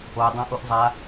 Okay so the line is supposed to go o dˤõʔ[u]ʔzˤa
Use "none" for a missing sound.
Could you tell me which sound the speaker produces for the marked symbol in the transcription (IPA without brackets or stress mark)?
u